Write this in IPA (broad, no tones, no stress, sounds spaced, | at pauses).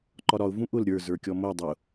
ǃ ɒ ɾ ɒ ʊ̯ v ũ ʔ ʊ l ɾʲ ə˞ z ə˞ kʲ ɔ m o dˤ ʊ